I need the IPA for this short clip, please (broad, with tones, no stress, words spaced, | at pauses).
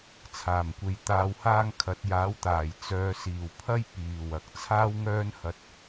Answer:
t͡sʰaː˨˩mkʷe˨j t̪aː˧whaː˥ŋ kʰɐ˨˥t̚jaː˨˥wt̪aː˨˩j t͡sœː˨siː˨˩wpʰɐ˥j piː˨˩wɐ˨k̚ t͡sʰaː˥w ŋœː˥nhɐ˧t̚